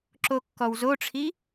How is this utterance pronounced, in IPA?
ǁ o kː ɔ w z o ʈ͡ʂʰ i

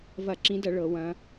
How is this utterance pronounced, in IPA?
v ɐ˧˩˧ ǁ ĩ˨˦ d ɐ˧˩˧ ɭ ɤ˧˩˧ w ɐ̃˨˦

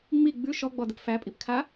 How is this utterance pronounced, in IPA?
ŋ͡m i ɡ͡b ʉ ʃ ɔ ɡ͡b ɔ d ə p f æ pʼ i p kʰ a

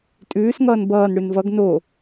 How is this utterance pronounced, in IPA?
tʼ ʉː s ŋ ʌː n b ʌː n ɽ ʉ n v ʌ ɡ n o

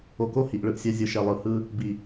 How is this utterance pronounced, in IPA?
o˨ k o˦ h i˨ ʔ ɭ ɯ˦ ʔ sʲ ɛ˦ zʲ ɯ˨ ʃ ɛ˨ lˠ ɯ˨ h ɯ˦ | b i˨

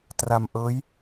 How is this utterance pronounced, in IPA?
t r a˧ m ʔ ɤː˦˥ j

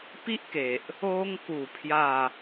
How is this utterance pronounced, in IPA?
p i˦ ʔ k e˨ ʔ | o˧ ŋ k u˨˩ pʰ j a˥˧

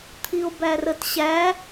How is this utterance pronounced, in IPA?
t̪ʰ i o̯ b æ r ə t ɕ æ

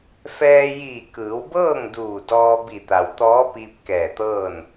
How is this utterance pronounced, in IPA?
f ɛː˧ j iː˧˩ k ɯː˩˧ w b ɤː˥˨ ŋ d uː˧˩ d ɔː˧ b i˧˩ t̪ a˩ w t̪ ɔː˧˥ p iː˧ p̚ k ɛː˧˩ t̪ ɤː˥˨ n

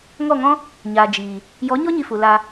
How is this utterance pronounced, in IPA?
ŋ ɔ˦˨ ŋ ɔ̃˦ | ɲ a˨ d͡ʒ iː˨ | j ɔ˨˦ ɲ ɔ˦ ɲ i˧ f u˨ l a˧

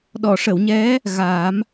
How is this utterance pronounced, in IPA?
ɗ ɔ˨˩˨ ʂ ə˨˩˨ w ɲ ɛ˧˥ | ɣ a˨˩˦ m

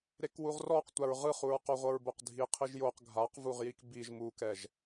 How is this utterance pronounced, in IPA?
ɾ e k w u ʁ r ɔ q tʷ a ɹ ʁ ɯ χ u ɹ q o ʁʷ ɤ ɹ b o q dʱ i qʰ i ʒ j o q ɡʱ a q v u ʁ j i k b i ʒ m u k ɛ ʒ

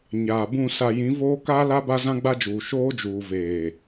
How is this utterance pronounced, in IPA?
ɲ aː˨ b ũ˦˨ s a˨ j ĩ˨˦ v oː˦ k aː˦ l a˦ b a˦ z ã˦ ɡ͡b a˦ d͡ʒ uː˨ ʃ oː˦ d͡ʒ uː˨ v eː˨

